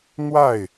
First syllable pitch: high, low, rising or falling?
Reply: falling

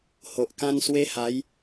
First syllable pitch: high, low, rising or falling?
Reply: low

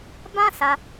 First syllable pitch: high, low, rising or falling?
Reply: high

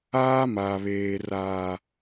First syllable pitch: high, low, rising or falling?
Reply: high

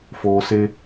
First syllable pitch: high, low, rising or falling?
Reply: low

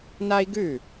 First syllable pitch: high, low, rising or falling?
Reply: high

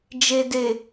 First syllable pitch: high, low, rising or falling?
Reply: low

